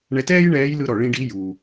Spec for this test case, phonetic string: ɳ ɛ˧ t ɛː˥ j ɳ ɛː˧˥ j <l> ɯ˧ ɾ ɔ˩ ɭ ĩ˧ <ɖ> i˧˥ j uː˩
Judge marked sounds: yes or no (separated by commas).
yes, yes